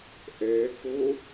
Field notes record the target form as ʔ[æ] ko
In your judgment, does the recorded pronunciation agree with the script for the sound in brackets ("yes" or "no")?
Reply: no